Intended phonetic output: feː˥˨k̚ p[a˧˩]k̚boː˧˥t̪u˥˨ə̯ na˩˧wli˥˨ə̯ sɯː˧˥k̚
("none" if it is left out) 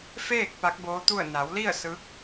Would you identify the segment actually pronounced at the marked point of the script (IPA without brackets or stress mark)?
a˧˥